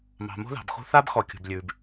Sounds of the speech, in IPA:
m ɑ̤˨ m o̤˦ ð ɑ̤˨ b x o̤˦ θ a˦ b x ɔ˨ kʲ o̤˨ b lʲ ʉː˨ b

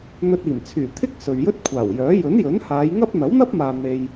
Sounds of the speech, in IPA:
n̪ ɵ˧ t̚ iː˨˩ m t͡sʰ yː˨˩ t̪ʰ ɪ˥ k̚ s ɵ˨ ɥ j ɵ˥ t̚ kʷʰ aː˨˩ w j œː˨˥ j ɵ˨˥ n j ɵ˨˥ n h aː˨˧ j ŋ ɐ˥ p̚ n̪ ɐ˨˥ w n̪ ɐ˥ p̚ m aː˨ n̪ e˧ j

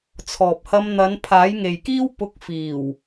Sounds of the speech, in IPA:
t͡sʰ ɔː˨ p̚ h ɐ˧ m n̪ ɐ˨˧ n pʰ aː˨˥ j ŋ e˨ j k iː˥ w p ʊ˧ k̚ f iː˨˩ w

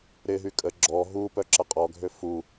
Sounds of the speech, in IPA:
ɾ ɪ ɦ y kʼ ə ɡ͡ǁ ɔ ɦ u p œ ǁ ɐ qʼ ɔ ɡʱ ø f u

